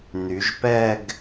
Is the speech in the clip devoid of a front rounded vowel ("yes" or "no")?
no